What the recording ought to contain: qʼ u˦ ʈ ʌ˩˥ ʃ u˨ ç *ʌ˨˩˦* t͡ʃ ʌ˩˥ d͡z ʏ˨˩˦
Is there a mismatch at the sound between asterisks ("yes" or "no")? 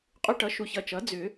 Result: yes